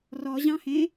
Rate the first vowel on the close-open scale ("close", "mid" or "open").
mid